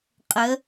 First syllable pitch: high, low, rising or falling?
rising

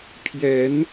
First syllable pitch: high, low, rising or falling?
rising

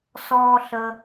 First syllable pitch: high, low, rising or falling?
high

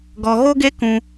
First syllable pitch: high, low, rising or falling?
low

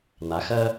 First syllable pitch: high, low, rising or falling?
rising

